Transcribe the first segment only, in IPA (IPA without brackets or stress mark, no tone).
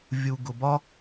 vʲ